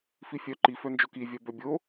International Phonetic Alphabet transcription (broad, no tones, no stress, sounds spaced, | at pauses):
f i fʲ œ ǃ i f œ n d͡ʒ o k i vʲ œ b œ bʲ o